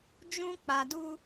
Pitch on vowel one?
high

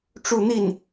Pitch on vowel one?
falling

